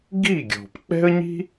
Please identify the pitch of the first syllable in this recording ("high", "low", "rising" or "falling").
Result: falling